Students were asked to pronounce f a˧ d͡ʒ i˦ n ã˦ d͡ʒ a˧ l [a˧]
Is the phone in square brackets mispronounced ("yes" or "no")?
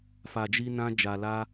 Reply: yes